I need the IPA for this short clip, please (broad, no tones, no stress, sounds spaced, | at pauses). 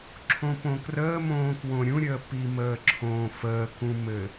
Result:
ǁʰ õ p õ k r əː m õː k w õ ɾʲ ũ ɾʲ əː p i m əː ǁʰ õː f əː k ũ m ɘ